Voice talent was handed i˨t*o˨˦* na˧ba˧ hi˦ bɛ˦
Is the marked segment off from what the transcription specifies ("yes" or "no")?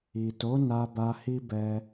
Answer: no